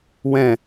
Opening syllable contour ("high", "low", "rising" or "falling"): falling